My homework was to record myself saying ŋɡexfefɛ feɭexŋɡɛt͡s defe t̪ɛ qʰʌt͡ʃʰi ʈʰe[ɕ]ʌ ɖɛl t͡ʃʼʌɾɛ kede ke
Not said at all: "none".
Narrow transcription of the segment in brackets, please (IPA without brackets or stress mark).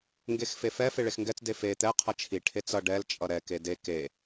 t͡s